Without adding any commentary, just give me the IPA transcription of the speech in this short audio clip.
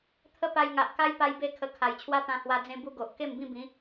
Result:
t̪ʰ ə˦ p a˧ j ŋ a˨ ʔ k a˦ j p a˧ j b e˥˧ kʰ ə˧ kʰ a˨˩ j t͡ɕʰ w a˦ t̪ ã˧ h w a˧ d͡z ẽ˧ b u˦ ɡ o˨ ʔ k e˥˧ m b ĩ˥˧ b ĩ˨˦

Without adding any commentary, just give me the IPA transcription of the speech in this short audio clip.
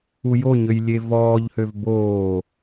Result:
u j o ɲ ø j lʲ e v ɔː ʎ h ø v b oː

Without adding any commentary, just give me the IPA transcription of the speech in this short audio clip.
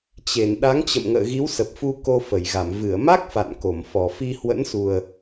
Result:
t͡ɕ e˧˩ n ɗ a˨˦ ŋ t͡ɕ ə̰˧˨ m ŋ ə̰ː˧˨ ɣ i˨˦ w s ə˨˩ p̚ f u˧ k o˧ f ə˧˩ j ɣ a˧˩ m v ɨ˧˩ ə̯ m a˦˥ k̚ f a̰˧˨ n k o˧˩ m f ɔ˨˩ f i˧ h w ə̰˧˥ n s u˨˩ ə̯

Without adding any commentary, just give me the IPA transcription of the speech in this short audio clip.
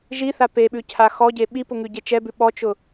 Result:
ʒ i θ a p e ɓ ʉ cʰ a x ɔ ɟ e ɓ i p ʊ ŋ ʉ ɟ e t͡ʃ ɛ b ʉ ɓ ɔ t͡ʃ ʊ

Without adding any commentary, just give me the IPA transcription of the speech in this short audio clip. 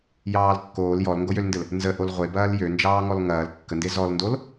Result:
j ɑː l kː oː l j ɔ l ŋ ɡ o j ø l n d ɘ l | n z ə ʔ o l ʁʷ e b ɐː l j ø n d͡ʒ ɑː ŋ ɔ l ŋ ɐː l kː ə n d e z ɔ l n d o l

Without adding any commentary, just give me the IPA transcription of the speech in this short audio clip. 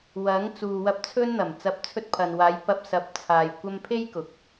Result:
w ɐ˨˥ ŋ t͡s uː˨ w ɐ˧ p̚ t͡sʰ ɵ˥ n n̪ ɐ˨˩ m t͡s ɐ˨˥ p̚ t͡sʰ ɵ˧ t̚ pʰ ɐ˨ n w aː˨˧ j p ɐ˧ p̚ s ɐ˨˥ p̚ t͡sʰ aː˧ j kʷ ɐ˥ m pʰ e˥ j k ʊ˨ k̚

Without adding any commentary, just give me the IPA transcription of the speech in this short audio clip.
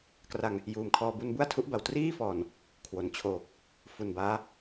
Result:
k r a˧ ŋ | j uː˨˩ m kʰ ɔː˧ b u˧ n b u˥˩ a̯ tʰ u˦˥ ʔ b a˨˩ w t r iː˥˩ f ɔː˨˩ n | kʰ w o˩˦ n t͡ɕʰ oː˨˩ k̚ | f u˨˩ n b aː˦˥

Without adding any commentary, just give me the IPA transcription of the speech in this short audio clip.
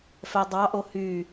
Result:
f ɛ dˤ ɑ ʔ o h y

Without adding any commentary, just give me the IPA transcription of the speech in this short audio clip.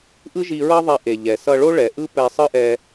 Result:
ʔ ɯ˥ ʒ i˧ ɹ ʌ˥ ðˤ ɛ˧ ʔ e˩ ʎ ɛ˩ s ʌ˧ ɭ o˥ ɭ ɛ˩ ʔ ɯ˥ p ɛ˧ sˤ ɯ˥ ʔ ɛ˧

